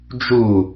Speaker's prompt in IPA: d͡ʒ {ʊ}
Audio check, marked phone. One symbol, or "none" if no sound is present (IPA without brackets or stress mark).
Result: u